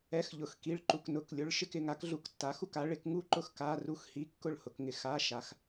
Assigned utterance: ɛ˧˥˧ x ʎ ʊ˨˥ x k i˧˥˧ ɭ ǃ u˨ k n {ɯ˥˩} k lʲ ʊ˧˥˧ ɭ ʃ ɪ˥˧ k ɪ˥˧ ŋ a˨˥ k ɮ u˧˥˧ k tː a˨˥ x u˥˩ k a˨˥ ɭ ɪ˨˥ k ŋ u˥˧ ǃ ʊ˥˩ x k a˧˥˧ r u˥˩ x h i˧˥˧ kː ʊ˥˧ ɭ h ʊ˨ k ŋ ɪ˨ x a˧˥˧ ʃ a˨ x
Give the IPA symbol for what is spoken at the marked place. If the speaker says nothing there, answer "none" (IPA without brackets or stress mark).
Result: ʊ˥˩